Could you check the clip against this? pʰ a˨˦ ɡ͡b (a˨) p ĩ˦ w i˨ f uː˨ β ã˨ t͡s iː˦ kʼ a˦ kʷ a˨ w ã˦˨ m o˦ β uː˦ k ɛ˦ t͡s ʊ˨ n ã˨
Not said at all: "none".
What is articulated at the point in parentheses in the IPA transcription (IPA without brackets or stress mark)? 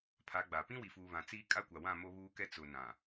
a˨